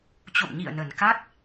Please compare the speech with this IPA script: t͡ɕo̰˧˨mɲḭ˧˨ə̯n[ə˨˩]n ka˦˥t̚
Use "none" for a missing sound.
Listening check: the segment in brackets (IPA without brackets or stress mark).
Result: ə˨˩